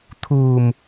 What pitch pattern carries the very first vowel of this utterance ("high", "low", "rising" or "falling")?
low